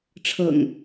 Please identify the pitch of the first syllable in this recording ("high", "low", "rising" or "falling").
low